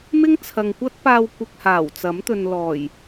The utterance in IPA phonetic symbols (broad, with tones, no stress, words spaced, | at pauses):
mɪ˥ŋt͡sʰɐ˨ŋkʷɐ˥t̚ paː˧w kʷɪ˧k̚haː˨˩wt͡sɐ˨˥mt̪ɵ˨n lɔː˨˩j